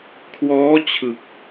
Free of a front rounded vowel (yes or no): yes